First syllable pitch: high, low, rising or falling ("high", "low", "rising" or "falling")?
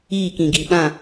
falling